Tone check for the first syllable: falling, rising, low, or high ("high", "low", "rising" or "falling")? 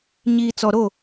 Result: low